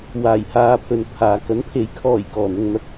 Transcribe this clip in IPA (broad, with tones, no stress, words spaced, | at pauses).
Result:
waː˨˩j haː˧pʰɵ˨npʰaː˨ kɐ˨˥npʰe˨˥jkʰɔː˨˩j kɔː˨˩n̪ʊ˧ŋn̪ɐ˧k̚